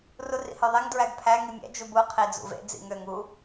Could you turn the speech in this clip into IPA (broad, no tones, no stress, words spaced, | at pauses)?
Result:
rurḭhøðˤeŋ dɹæɡpʰæ ŋimʲæ̰ d͡ʒubu qʰid͡zṵvḛ d͡zḭŋøŋ u